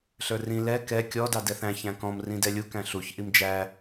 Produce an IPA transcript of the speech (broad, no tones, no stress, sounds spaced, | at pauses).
ɬ ə˞ r ĩ l ɛ k ɛ kʲ ɔ d ɑ d ɛ θ æ̃ ç æ̃ k ɔ̃ m r ĩ d ɛ lʲ u k æ̃ ɬ u ç ʔ i m d͡ʒ æ